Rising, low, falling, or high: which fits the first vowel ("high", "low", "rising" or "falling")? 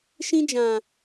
high